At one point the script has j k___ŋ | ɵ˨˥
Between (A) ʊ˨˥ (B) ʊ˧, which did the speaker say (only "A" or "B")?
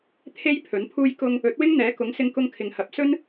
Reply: B